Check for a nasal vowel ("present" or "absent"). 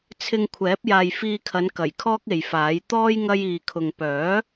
absent